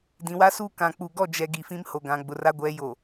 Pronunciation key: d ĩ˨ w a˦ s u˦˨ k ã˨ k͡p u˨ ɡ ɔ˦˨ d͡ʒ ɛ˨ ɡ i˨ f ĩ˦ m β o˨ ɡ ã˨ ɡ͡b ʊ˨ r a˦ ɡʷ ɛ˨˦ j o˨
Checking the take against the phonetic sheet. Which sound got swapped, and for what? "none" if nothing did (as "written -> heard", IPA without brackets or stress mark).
β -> h